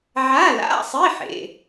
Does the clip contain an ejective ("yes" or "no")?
no